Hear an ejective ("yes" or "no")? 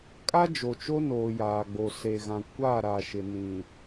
yes